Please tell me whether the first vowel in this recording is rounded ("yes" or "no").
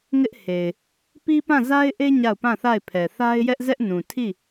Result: no